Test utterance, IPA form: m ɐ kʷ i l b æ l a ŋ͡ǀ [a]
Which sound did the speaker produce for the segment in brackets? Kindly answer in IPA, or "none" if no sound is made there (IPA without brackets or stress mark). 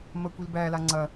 ɐ